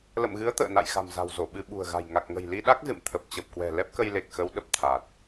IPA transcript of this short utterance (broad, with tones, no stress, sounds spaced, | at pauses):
l ə̰˧˨ m ɣ ɨ˨˦ ə̯ t̪ ə̰ː˧˨ n a̰˧˨ j x a̤˨˩ m z a̤˨˩ w z o˧˩ ɓ ɨ˧ ɓ ṳ˨˩ ə̯ ɣ a̤˨˩ j ŋ a˨˩ k̚ ŋ ə̤˨˩ j l i˧ ɗ a˦˥ k̚ z ɨ̰˧˨ m t̪ʰ ə˨˩ p̚ t͡ɕ ə˨˩ p̚ k w ɛ̤˨˩ l ɛ˦˥ p̚ k ə˧ j l e˨˩ k̚ x ə˨˦ w ɗ ə˨˩ p̚ t̪ʰ a˨˩ t̚